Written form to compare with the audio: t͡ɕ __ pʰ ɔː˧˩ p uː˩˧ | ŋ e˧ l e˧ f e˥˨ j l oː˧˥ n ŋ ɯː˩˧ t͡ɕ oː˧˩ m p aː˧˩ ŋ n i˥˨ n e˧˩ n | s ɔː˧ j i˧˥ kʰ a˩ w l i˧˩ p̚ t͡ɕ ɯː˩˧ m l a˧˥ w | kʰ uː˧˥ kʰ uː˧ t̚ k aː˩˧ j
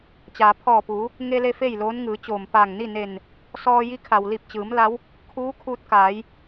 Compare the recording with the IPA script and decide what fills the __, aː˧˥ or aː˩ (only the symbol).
aː˩